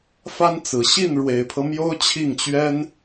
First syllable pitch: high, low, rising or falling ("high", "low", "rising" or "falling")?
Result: high